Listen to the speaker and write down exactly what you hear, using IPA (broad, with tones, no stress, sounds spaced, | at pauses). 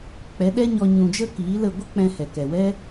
k͡p ɛ˨˦ ɗ ɛ˦ ɲ ɔ˧ ɲ ũ˨ d͡ʒ ə˧ k iː˨˦ l ə˦˨ ɡʷ ə˦ k͡p ɛ̃˧ h ɛ˨ k ɛ˨ w ɛ˦